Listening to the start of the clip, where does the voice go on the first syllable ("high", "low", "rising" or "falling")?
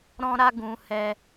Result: high